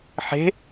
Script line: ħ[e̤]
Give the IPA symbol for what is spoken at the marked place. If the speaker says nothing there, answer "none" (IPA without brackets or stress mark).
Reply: e̤